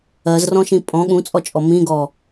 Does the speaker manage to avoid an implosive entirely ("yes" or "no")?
no